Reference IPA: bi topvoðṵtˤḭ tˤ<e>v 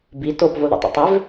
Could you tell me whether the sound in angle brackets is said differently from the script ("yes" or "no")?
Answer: no